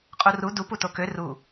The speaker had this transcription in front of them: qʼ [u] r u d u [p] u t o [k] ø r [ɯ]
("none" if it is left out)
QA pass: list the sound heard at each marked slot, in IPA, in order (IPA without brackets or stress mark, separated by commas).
u, p, k, u